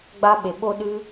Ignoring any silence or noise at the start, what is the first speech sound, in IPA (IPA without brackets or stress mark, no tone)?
ɡ͡b